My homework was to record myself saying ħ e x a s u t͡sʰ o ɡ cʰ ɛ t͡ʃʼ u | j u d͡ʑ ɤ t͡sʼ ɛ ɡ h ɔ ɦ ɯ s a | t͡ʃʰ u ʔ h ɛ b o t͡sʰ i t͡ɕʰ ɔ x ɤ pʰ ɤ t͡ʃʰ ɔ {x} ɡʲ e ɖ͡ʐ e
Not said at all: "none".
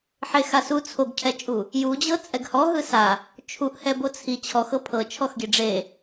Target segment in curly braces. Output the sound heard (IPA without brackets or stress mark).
x